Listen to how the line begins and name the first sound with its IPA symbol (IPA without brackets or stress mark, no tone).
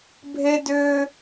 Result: bʱ